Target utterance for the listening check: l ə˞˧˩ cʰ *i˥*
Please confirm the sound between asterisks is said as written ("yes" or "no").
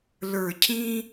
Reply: no